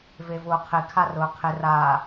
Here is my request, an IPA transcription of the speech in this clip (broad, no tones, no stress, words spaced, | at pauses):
vevʊːqʰɪ kʰarʊːqʰɪ ra